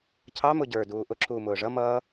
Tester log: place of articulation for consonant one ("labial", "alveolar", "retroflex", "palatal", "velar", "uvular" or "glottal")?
palatal